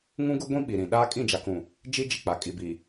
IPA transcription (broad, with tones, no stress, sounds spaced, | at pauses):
ŋ ũ˦ ɡ ʊ˦ ɡʷ ĩ˦ ɓ i˨ ɾ ĩ˨ ɗ aː˦ kʼ ĩ˦˨ d͡ʒ a˨ k ũ˨ | d͡ʒ i˦ d͡ʒ i˨ k͡p a˨ kʼ i˨ b i˨